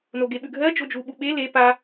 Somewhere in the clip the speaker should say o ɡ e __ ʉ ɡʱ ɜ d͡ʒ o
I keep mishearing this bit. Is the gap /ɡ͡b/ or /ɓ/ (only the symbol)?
ɓ